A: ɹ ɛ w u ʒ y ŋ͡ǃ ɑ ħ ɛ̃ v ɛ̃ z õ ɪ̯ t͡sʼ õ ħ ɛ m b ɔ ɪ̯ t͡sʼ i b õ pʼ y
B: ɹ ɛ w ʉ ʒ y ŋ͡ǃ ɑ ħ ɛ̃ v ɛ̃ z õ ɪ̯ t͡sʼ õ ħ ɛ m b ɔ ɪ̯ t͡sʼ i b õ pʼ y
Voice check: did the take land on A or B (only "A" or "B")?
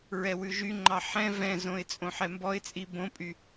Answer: B